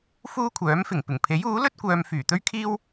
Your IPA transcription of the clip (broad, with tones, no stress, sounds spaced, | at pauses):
f uː˥ kʷʰ œː˨˥ m f ɪ˨˩ ŋ p ɪ˨˩ ŋ pʰ e˨˥ j uː˨˥ l ɵ˥ t̚ kʷ œː˨ m f yː˨˩ t̪ ɵ˥ ɥ kʰ iː˥ w